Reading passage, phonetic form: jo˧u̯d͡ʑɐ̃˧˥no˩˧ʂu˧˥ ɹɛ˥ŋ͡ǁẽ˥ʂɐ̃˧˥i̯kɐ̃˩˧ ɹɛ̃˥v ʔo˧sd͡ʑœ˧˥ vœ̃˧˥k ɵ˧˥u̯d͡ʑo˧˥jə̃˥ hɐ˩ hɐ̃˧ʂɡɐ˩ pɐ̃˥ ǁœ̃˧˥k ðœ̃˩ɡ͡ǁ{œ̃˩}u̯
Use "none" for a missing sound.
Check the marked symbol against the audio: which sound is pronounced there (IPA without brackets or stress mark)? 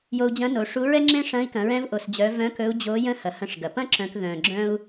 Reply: œ̃˥